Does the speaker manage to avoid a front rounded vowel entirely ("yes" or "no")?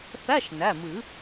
yes